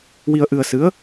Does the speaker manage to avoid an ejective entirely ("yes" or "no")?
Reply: yes